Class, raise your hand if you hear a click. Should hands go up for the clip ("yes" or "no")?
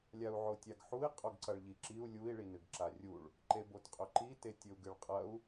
yes